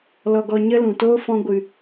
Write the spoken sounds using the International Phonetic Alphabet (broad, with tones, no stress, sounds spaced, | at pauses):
l ɔ˧ ɡ ɔ˧ ɲ ə˦ l ũ˨ t oː˦ f ɔ̃˧ ɡʷ ɨ˨